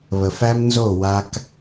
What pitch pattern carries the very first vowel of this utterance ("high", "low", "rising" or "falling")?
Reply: low